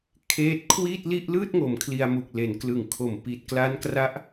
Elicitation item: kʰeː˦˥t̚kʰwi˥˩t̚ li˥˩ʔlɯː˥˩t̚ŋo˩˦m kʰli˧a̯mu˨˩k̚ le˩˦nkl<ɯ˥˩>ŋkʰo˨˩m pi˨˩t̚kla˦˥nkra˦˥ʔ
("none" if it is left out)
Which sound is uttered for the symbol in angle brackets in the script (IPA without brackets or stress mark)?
ɯ˨˩